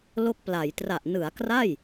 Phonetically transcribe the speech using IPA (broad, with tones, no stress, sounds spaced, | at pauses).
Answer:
l o˦˥ k̚ p l a˩˦ j t r a˨˩ ʔ n ɯ˩˦ a̯ k r a˥˩ j